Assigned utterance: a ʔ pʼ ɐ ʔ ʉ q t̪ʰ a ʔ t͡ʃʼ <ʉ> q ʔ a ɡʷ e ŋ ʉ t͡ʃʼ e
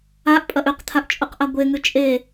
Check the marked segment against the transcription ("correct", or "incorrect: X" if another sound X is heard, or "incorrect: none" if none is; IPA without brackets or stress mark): incorrect: u